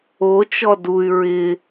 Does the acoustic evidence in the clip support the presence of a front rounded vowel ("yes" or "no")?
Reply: yes